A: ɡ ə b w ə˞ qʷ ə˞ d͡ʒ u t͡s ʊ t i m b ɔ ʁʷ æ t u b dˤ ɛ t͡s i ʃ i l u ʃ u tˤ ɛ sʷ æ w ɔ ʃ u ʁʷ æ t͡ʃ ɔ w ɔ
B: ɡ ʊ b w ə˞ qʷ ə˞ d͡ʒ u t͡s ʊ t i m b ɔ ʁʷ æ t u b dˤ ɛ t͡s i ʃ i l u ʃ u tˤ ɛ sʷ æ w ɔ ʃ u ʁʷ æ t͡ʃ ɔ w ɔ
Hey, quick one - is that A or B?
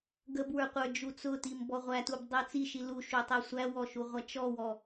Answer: A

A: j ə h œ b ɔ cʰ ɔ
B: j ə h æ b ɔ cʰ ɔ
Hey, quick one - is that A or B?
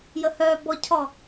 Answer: A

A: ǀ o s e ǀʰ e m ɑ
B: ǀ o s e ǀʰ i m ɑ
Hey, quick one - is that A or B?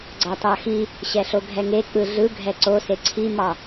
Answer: B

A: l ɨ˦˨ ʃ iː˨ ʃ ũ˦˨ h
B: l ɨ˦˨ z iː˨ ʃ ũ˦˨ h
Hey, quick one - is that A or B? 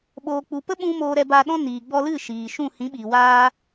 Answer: A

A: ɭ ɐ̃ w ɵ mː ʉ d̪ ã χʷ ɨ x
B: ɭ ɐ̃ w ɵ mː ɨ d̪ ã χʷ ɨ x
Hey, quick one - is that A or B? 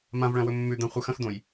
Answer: A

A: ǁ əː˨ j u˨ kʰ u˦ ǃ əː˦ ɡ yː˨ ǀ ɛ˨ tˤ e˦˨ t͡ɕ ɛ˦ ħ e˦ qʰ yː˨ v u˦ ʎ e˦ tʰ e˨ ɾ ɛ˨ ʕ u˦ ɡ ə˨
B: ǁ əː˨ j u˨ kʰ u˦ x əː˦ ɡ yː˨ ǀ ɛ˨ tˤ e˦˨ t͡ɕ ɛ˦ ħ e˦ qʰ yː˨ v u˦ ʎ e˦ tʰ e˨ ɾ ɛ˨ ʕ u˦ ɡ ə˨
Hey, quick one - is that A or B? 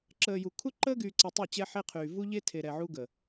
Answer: A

